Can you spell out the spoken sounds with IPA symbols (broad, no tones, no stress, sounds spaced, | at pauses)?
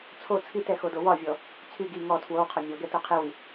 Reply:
t͡sʰ o t͡sʰ i t ɛ x o d o w ɒ vʲ ɔ | t͡sʰ y ɡ i ŋ ɔ tʰ w o w qʰ ɔ mʲ ɔ ɡ ɛ t o qʰ i w i